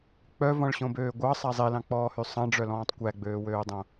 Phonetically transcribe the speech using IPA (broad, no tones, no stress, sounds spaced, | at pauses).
k͡p œ v ɔ̃ ɭ ɕ õ b øː ɡʷ ɑ sˤ æ zˤ i l ɑ̃ k͡p ɔː h y sˤ ɑ̃ ɖ͡ʐ œ l ɔ̃ː tˤ kʷ æ ɡ͡b øː w øː dˤ õ